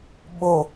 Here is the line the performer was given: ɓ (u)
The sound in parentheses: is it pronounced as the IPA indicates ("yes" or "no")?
no